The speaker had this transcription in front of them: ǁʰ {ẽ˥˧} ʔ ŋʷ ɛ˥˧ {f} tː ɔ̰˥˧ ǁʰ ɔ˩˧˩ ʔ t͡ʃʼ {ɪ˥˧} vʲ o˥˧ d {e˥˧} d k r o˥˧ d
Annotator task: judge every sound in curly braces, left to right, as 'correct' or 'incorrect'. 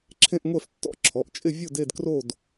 correct, correct, correct, correct

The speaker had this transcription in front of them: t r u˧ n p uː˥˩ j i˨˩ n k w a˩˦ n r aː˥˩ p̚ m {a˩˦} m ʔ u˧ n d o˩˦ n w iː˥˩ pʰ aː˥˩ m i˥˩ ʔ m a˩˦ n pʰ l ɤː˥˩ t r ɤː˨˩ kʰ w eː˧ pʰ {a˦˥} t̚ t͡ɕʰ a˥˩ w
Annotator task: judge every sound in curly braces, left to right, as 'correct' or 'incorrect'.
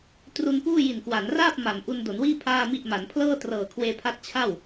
correct, correct

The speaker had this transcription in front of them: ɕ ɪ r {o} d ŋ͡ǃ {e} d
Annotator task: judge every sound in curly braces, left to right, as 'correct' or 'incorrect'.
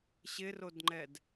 correct, incorrect

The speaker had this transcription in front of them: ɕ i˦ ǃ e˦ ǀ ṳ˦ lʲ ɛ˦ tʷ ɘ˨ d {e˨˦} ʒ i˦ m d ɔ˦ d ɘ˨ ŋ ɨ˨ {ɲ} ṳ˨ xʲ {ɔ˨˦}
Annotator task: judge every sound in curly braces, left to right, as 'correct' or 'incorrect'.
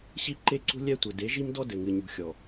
correct, correct, incorrect

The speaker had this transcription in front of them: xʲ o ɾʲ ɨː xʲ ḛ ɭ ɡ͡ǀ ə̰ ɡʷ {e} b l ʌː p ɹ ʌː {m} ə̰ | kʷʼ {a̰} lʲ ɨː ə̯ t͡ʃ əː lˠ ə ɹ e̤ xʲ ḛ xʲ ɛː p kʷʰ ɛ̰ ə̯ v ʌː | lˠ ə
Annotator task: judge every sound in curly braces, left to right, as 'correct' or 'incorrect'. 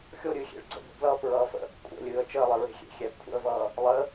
incorrect, incorrect, incorrect

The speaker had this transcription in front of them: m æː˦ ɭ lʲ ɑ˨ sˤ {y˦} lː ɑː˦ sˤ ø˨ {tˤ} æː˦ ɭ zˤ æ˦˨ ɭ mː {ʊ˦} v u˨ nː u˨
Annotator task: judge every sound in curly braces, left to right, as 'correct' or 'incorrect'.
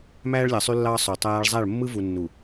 correct, correct, incorrect

